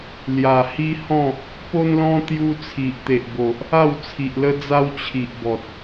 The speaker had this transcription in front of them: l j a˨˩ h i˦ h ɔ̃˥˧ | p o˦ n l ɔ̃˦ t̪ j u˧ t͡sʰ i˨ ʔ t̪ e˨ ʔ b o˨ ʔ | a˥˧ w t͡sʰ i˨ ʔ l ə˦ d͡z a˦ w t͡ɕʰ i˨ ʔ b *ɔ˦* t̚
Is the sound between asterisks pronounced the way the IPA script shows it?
no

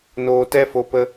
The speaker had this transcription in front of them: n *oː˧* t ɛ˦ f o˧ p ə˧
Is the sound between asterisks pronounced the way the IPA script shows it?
yes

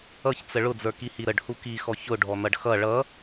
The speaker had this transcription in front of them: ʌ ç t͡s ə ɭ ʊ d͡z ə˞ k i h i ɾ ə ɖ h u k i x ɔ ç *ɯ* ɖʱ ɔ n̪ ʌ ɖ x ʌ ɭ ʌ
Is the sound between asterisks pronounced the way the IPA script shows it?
no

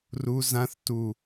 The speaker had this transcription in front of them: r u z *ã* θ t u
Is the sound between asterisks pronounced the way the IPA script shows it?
yes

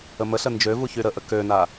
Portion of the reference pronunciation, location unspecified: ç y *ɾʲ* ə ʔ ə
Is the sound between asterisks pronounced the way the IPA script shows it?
no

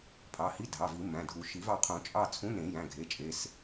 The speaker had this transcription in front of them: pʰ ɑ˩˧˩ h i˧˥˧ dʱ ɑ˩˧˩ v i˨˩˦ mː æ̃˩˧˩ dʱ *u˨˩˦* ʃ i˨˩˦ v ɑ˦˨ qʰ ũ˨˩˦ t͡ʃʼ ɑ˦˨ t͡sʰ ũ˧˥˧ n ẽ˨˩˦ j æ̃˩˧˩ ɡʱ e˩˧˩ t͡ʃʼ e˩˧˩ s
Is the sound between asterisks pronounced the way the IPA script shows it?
yes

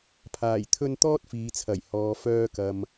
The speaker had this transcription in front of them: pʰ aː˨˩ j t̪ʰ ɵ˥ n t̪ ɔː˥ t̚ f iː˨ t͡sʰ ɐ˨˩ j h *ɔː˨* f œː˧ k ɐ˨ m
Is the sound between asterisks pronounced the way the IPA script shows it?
yes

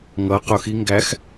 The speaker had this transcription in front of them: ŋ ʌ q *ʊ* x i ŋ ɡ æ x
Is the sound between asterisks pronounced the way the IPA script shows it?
yes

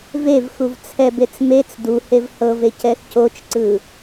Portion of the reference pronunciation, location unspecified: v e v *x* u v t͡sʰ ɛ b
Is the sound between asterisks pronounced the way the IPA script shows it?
yes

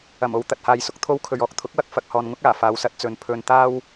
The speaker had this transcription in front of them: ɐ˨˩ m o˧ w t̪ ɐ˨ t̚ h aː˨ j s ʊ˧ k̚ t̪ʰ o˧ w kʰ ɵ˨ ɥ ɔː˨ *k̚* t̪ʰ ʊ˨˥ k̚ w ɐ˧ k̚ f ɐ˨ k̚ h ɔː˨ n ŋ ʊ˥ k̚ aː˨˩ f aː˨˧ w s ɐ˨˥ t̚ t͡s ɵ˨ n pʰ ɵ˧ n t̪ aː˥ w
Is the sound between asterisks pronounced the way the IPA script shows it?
yes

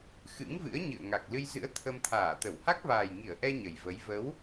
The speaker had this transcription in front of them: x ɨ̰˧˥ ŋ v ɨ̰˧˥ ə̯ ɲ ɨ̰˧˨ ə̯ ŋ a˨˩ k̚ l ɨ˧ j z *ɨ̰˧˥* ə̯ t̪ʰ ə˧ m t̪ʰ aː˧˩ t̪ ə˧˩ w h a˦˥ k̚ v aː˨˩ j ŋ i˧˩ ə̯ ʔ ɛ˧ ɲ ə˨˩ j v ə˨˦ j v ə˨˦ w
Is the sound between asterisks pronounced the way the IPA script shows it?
yes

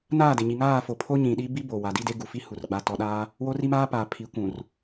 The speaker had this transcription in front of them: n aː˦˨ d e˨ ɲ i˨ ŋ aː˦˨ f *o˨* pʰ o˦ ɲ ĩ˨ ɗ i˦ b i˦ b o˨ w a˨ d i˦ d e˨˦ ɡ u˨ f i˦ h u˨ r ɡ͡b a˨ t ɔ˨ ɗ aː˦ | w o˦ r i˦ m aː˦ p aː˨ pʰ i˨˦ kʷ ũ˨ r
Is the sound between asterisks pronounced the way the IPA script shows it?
yes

